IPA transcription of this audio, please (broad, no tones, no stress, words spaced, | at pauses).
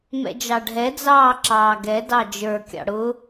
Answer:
mɛ̰d͡ʒɑɖʱɛ d͡zɑːǁɑːɡɛ dɑd͡ʒə˞ kʲɑ̰ɽʊ